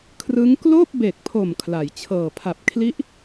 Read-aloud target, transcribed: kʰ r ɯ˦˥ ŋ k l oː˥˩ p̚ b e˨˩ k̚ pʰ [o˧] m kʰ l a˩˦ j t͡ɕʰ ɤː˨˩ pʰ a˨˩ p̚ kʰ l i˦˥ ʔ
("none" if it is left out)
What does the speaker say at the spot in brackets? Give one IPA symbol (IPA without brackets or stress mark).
o˨˩